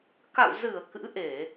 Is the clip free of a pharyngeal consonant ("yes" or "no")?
yes